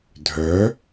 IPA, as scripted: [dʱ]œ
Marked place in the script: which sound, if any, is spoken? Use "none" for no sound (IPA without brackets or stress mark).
dʱ